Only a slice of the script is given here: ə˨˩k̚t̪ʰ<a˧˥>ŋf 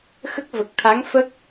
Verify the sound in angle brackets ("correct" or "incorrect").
correct